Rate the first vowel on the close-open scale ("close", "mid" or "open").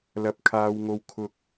open